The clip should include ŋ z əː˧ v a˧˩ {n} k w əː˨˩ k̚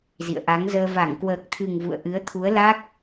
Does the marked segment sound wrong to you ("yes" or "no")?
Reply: yes